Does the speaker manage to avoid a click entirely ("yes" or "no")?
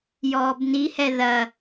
yes